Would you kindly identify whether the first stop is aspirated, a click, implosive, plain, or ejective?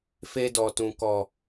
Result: plain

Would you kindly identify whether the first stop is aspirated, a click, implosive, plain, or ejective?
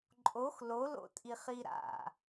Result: click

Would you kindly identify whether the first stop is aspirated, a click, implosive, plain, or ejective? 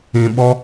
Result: implosive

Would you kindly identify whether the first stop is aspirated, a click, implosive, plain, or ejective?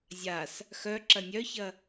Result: click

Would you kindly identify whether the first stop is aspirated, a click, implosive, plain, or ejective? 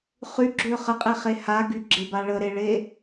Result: click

